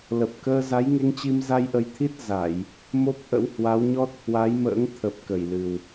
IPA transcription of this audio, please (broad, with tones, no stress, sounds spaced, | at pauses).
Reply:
l ə˨˩ p̚ k əː˧ z a˨˦ j ŋ e˧ ŋ t͡ɕ i˧ m z a˧ j ʔ ə˨˦ j t̪ʰ i˦˥ t̚ z a˧˩˨ j | m o˦˥ p̚ ʔ ə̰˧˥ w h w a˨˦ w ɲ ɔ˦˥ t̚ h w a˨˦ j m ə̰ː˧˥ ŋ t̪ʰ ə˨˩ p̚ k ə˧˩ j l ɨ˨˩ w